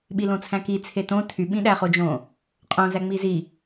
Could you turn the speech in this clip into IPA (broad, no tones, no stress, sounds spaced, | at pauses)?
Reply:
ɓ i l õ t͡sʰ æ̃ k i t͡sʰ e t õ tʰ y ɓ ĩ ɗ æ χ o d͡ʒ õ | qʼ õ z æ ŋ͡m i z i